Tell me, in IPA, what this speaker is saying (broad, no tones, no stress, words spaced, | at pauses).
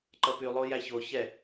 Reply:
ǃʌpy lˠojæço çɛ